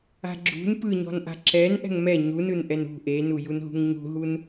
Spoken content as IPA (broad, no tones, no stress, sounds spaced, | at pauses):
a̤ ɡ͡ǁ ṳ n p ɯ ɲ ɔ̤ n ʔ a̤ ǁ ɛ n ʔ ɛ̤ ŋ m ɛ ɲ u n ɯ n ʔ ɛ n ṳ ʔ e n u j u n ɦ ṳ ŋ ɲ ṳ ɦ u n